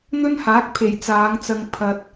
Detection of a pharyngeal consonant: absent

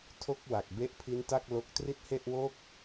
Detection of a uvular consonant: absent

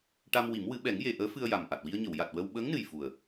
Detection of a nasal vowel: absent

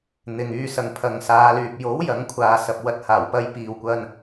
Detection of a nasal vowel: absent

